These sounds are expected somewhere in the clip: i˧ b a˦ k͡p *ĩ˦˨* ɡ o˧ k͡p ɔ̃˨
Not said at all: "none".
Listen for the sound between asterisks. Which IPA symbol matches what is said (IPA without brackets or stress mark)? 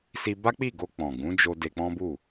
i˦˨